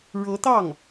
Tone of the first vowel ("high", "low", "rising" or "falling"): rising